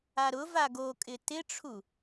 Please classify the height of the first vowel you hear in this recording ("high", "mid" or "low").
low